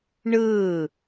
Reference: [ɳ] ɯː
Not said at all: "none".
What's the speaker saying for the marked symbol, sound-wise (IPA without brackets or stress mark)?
ɳ